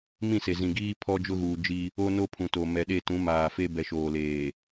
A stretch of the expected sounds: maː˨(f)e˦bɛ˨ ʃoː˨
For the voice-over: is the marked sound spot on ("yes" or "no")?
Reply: yes